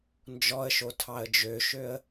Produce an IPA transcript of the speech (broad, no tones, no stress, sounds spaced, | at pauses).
n d͡ʒ ɔ ə̯ ʃ o tʰ ɑ ə̯ d͡ʒ ø ʃ ø ə̯